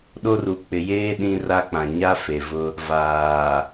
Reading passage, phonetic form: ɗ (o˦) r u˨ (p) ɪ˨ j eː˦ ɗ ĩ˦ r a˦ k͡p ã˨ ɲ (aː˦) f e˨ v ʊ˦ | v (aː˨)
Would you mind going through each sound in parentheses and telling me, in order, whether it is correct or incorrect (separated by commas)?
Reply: correct, incorrect, incorrect, correct